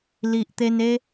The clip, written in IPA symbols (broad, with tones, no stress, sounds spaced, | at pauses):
l i˨ ʔ t̪ e˧ n e˦